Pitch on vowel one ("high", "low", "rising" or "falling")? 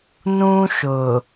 high